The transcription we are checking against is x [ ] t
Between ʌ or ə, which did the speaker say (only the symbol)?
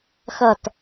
ʌ